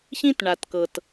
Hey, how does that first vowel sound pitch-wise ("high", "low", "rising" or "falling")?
high